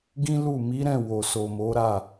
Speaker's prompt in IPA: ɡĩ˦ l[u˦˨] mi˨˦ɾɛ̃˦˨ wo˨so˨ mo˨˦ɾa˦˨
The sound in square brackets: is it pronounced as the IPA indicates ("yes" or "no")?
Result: yes